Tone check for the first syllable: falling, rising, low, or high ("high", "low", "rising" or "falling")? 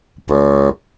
low